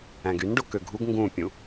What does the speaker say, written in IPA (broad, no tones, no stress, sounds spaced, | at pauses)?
æ̃ ɡ y n ɖ o k ø ɡʱ u ɡ ŋ ɡ ũ pʲ ũ